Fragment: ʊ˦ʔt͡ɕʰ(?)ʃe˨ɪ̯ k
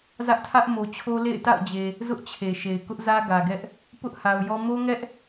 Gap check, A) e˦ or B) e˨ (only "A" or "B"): B